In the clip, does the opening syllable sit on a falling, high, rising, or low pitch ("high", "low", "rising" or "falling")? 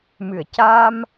low